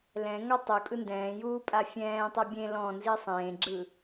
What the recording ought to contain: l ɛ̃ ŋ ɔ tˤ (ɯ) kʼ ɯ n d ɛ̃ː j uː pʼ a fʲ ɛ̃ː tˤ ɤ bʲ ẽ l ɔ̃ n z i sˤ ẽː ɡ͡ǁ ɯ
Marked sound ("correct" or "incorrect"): incorrect